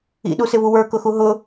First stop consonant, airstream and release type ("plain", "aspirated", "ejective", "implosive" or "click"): implosive